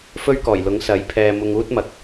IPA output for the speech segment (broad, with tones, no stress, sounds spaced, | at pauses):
f ɵ˥ ɥ k ɔː˨˩ j l ʊ˨˥ ŋ s ɐ˨˥ j pʰ ɛː˧ m ʊ˧ ŋ uː˥ t̚ m ɐ˨ k̚